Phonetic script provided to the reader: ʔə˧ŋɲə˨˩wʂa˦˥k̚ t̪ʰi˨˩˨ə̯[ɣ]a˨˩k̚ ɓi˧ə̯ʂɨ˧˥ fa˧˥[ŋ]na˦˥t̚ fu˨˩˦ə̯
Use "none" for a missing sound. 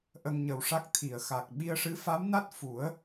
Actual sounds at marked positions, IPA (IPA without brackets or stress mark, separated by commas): x, m